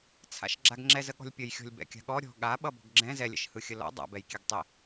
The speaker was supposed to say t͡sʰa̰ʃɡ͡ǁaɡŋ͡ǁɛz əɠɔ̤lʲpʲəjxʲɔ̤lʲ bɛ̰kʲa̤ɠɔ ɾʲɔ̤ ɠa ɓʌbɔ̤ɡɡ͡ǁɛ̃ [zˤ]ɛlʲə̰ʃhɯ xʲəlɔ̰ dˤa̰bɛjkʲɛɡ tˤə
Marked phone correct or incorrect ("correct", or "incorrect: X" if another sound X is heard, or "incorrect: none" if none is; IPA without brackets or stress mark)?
incorrect: z